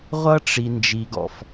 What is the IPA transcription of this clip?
ʁʷ ʌ˦ ʈ͡ʂ i˨ n d͡ʒ i˨ ɡ ɔ̰˨ f

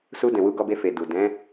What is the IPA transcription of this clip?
s u˧ d ɛ̃˨ w u˨˦ ɡ ɔ˧ b e˧ f e˨ d u˨ d ɛ̃˨˦

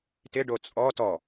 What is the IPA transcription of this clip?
t ɪ ɖ o t͡sʼ ɔ t ɔ

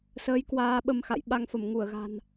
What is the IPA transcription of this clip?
s əː˨˦ j k w aː˧ ɓ ə˧ m x a̰˧˨ j ɓ a˧ ŋ f ə˧˩ m ŋ u˧˩ ə̯ ɣ a̤˨˩ n

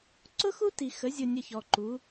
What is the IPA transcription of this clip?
ǀ ʊ˦ x u˦ t i˨ x ə˨˦ zʲ ʊ˨ nʲ ə˨ ç ɔ˨ ǃ u˨˦

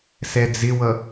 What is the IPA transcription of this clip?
s ɛ d͡z ɪ w ʌ

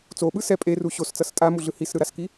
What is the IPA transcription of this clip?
t͡s o ɓ ɯ s ɛ pʼ e r u ɕ o s t͡s ʌ s tʼ a m u ɮ ɯ h i s ɾ ɯ ɾ a s k i

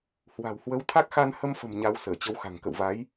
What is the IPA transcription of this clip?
h w a̤˨˩ w h w ə˨˦ w t̪ʰ a˦˥ k̚ x a˧ n h ə˧ m f ə̤˨˩ m ɲ a˨˦ w s əː˧˩ t͡ɕ ə˨˦ w x a̤˨˩ ŋ k ə̰˧˨ w v a˨˦ j

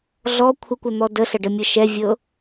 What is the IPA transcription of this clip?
ɮ ɔ kʷʰ ə kʷ ə n̪ ɔ d ə ɬ ə ɖ ə mʲ ɤ ʃ ɛ vʲ ɤ

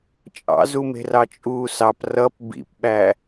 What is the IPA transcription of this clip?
t͡ʃʼ ɑ̰ z u m e̤ r ɑ t͡ʃʼ uː s ɑ p r ʌ p b ḭ p ɓ æ

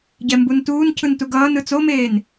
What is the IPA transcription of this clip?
ɟ ɛ m b u n t uː n cʰ ɯ n t u ɡ ʌː n ɯ t͡s o m eː n

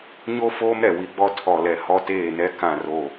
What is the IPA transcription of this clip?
ɲ o˦ f oː˦ m ɾ ɛ˨ w i˨ ɡ͡b ɔ˦ tʰ ɔ˨ l ɛ˨ h ɔ˦ t eː˦˨ n ɛ˦ k ã˦˨ r o˦˨

